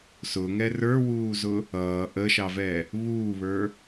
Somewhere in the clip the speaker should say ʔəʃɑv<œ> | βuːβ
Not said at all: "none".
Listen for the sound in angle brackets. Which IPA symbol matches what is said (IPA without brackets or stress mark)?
ɛ